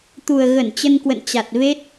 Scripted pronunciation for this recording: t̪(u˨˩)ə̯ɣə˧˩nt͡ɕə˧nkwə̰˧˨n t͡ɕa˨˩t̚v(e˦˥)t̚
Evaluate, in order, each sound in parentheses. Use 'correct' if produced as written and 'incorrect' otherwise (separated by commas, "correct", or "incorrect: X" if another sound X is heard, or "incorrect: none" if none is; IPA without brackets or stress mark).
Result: correct, correct